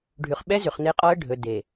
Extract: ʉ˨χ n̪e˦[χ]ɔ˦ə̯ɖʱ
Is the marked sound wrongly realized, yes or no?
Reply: yes